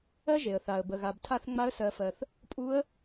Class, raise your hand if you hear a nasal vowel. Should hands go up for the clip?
no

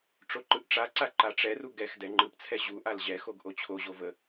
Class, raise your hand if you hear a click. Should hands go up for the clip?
yes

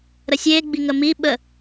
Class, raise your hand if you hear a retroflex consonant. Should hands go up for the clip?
no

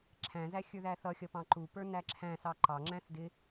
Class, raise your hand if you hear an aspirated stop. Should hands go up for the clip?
yes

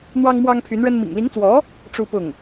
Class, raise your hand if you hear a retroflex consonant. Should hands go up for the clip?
yes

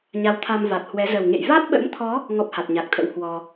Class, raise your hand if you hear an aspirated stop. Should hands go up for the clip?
yes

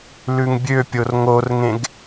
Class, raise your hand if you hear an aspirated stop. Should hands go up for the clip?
no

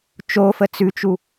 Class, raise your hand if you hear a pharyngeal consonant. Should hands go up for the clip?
no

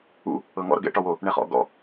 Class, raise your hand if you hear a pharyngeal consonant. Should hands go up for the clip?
no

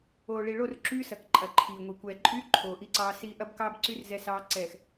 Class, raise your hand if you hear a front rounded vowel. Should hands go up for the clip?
yes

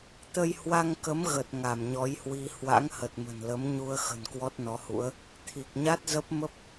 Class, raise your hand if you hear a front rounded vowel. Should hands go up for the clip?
no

